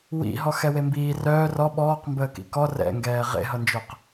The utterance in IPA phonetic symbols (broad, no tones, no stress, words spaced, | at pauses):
wḭ ɦɔxɛwembiː rœː rɔ ɓɔːqmbəː kḭkɔ rɛ̰ŋɡɛː ʁḛɦʌnd͡ʒœq